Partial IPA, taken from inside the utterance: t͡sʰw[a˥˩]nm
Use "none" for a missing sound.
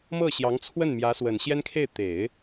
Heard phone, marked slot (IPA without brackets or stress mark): ə˥˩